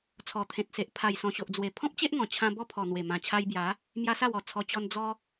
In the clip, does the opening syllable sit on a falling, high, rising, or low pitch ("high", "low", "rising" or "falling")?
low